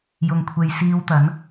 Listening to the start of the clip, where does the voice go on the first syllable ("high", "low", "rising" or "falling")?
low